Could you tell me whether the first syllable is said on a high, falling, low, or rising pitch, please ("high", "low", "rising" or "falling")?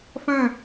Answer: falling